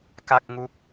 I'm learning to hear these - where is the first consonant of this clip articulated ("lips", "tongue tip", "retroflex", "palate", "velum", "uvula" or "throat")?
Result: velum